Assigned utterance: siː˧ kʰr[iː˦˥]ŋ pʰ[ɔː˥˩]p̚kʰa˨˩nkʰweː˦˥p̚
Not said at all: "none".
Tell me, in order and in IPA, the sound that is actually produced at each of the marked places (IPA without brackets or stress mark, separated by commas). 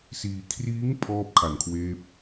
iː˦˥, ɔː˥˩